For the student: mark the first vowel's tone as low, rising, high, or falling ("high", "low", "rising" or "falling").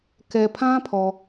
low